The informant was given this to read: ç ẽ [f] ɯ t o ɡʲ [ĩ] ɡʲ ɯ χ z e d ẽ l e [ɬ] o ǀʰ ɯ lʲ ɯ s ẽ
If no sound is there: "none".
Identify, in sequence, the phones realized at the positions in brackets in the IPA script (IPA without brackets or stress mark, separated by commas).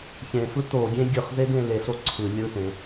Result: f, ẽ, ɬ